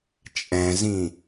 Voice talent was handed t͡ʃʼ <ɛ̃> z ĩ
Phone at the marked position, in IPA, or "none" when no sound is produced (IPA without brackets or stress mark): ɛ̃